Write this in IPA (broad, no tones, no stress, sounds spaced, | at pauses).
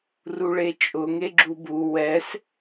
r u ɭ e t͡ʃʼ ʊ ŋ e ɡ͡ǁ u b u w ɛ s